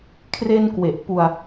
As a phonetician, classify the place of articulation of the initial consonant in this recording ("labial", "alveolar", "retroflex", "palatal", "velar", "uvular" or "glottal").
velar